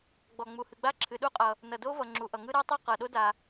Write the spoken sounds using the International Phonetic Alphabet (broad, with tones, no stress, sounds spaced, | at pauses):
ɡ͡b ɔ˩ ŋ͡m u˩ h ɨ˩ ɡ͡b a˥ ǁʰ ɨ˩ ɗ u˥ qʼ ʌ˩ | n ʌ˩ d o˥ v ʌ˩ ŋ͡ǁ u˩ ʔ ʌ˩ ŋ ɯ˥ ɾ ɤ˥ tˤ u˥ q ɤ˩ ɗ o˥ d a˩